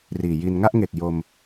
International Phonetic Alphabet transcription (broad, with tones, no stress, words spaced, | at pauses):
riː˨˩ji˧n ŋa˥˩ʔŋe˨˩k̚ jo˧m